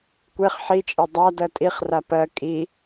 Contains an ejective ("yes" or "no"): yes